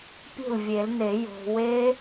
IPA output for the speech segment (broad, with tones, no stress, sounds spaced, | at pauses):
pʲ ṳ˥˩ l vʲ e˨˩˦ l n e˨˩˦ j o̤˨ w e˦˥